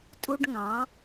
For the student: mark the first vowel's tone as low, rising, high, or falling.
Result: high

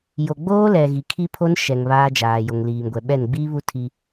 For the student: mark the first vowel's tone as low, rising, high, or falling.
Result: low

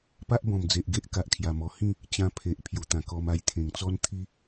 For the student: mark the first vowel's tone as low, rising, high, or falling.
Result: high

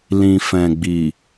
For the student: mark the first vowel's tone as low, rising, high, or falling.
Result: low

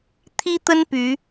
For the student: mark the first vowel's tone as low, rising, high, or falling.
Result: high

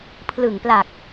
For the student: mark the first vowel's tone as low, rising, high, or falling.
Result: low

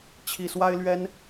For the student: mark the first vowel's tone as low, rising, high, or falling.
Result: low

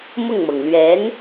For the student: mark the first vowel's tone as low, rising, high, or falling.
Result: falling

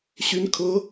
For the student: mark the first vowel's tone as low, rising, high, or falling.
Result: rising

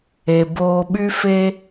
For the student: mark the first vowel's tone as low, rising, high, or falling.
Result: low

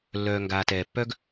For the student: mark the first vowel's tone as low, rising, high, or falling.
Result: low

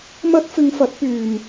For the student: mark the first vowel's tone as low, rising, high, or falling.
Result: high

